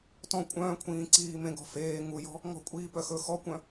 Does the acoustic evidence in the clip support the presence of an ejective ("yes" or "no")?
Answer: yes